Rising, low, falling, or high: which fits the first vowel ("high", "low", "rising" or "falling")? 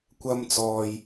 high